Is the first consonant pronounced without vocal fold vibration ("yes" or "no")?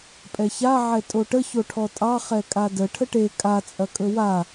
yes